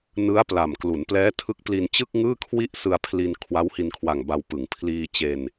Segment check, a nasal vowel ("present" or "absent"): absent